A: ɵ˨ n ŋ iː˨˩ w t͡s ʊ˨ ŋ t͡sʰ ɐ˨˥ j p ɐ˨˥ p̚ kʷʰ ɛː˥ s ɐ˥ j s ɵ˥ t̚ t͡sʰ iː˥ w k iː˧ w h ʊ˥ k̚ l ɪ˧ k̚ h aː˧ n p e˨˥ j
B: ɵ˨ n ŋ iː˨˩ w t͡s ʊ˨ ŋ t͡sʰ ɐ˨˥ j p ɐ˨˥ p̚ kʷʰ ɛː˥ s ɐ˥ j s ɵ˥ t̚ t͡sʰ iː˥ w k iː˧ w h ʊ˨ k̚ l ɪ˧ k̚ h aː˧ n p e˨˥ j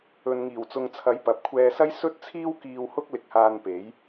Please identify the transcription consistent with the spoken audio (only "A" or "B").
A